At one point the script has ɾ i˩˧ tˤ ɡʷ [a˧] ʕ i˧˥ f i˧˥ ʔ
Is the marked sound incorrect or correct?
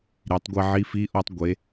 correct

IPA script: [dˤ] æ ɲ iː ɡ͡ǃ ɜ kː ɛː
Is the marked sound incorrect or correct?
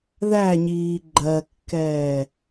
incorrect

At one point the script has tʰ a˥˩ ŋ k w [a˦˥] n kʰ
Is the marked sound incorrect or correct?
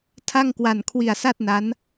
incorrect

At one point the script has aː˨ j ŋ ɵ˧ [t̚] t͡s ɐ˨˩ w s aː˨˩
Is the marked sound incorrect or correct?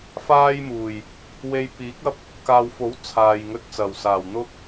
correct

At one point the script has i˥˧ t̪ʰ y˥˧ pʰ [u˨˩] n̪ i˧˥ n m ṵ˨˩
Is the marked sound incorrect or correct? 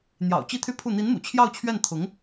incorrect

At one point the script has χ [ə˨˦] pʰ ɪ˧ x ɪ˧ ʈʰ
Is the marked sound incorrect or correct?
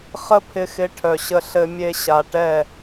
incorrect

